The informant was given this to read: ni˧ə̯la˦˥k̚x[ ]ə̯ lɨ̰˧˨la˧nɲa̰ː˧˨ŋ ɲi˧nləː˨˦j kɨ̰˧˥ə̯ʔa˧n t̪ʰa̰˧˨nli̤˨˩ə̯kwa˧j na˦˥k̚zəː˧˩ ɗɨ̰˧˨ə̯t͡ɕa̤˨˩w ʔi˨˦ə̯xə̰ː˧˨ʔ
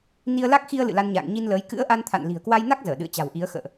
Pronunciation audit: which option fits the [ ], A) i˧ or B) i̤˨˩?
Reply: A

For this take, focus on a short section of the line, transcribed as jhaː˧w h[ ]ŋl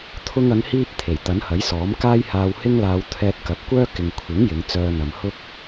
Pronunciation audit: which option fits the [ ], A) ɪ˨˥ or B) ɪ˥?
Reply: B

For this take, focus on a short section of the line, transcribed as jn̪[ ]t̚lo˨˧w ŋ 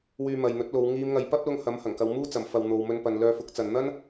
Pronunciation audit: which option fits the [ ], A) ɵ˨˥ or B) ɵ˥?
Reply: A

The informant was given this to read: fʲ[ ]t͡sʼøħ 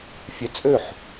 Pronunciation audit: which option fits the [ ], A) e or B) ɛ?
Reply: B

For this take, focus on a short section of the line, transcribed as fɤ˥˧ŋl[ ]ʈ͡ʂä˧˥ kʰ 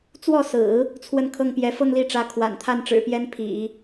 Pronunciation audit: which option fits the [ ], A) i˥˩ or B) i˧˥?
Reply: A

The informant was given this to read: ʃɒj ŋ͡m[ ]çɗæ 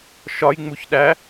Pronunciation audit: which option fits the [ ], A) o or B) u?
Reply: B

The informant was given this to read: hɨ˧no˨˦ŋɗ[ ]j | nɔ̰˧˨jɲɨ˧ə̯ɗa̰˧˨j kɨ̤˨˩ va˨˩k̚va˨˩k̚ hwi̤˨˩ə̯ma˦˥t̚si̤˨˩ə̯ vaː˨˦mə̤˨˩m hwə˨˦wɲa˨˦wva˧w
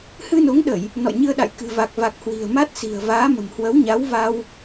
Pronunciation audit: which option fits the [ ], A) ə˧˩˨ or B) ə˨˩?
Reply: A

